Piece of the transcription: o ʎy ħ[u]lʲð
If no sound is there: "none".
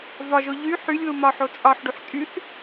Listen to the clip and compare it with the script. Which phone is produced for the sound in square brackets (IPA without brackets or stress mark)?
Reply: y